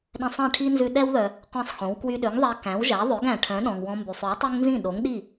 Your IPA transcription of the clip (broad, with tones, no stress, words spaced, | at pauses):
ɗɛ̃˧sˤɛ̃˥˩ʈʰi˥nzʉ˧ ɗɛ˥wðœ˩ | qʷɛ̃˥˩sˤxõ˩˥w kwy˧ɗø˩˥ŋðˤɛ˧ kæ̃˩˥wʒæ˩˥ðˤø˩˥ɡ æ̃˩ʈʰœ̃˩˥ ɗɔ̃˩ŋwɔ̃˧mby˩sˤʉ˩˥w tˤɛ˥ŋnzĩ˥˩ɗo˩˥ŋɗi˥˩